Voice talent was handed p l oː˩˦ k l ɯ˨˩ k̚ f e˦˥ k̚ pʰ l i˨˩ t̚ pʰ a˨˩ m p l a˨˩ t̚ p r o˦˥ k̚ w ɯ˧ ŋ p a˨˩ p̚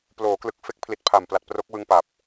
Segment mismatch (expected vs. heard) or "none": none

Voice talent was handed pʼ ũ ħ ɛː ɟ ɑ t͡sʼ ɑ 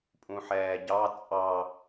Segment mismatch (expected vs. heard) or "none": none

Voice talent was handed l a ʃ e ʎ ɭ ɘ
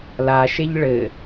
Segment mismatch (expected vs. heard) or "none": none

